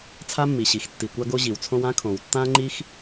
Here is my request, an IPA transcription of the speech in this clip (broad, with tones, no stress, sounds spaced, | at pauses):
t͡sʰ a˥ mː i˩ ɕ i˩ x tː i˩ kʷ a˥ ɡ o˥ ʑ i˩ w t͡sʰ õ˥ w ã˥ kʰ õ˩ w tː ã˥ ŋ͡ǃ i˥ x